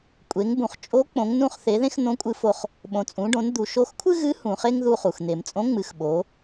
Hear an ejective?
yes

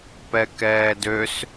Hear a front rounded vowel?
yes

